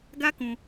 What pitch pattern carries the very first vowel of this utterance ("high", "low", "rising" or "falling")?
high